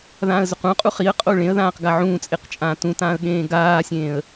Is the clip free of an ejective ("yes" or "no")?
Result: no